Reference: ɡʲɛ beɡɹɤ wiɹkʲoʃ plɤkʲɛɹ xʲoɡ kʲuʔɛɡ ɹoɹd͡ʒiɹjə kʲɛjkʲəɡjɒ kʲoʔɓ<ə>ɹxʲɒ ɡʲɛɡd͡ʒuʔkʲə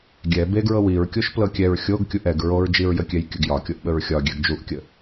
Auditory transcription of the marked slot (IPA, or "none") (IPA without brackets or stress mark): ə